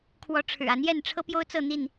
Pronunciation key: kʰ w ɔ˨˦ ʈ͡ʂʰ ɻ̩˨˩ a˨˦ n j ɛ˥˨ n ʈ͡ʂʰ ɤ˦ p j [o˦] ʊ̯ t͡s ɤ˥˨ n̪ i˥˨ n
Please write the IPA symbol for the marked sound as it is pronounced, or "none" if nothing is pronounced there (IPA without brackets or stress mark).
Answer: o˦